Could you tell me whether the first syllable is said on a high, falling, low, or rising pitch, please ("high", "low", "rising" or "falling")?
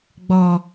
low